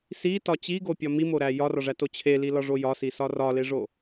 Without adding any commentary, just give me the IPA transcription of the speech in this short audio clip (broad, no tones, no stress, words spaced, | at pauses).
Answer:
sitɒ t͡ɕiɡopʲɒ mimoɾæ jɒrɒʐæto t͡ɕʰelilɒʐo jɒsisɒ rɒleʐo